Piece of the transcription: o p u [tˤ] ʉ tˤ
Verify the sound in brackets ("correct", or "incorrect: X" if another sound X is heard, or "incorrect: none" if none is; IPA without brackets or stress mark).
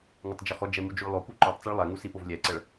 incorrect: ǃ